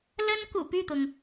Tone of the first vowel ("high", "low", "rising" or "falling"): high